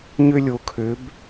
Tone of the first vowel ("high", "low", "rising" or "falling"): high